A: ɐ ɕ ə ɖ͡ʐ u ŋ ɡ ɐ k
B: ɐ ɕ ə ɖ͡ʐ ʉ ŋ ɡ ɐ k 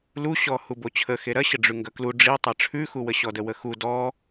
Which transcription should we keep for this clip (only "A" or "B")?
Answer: B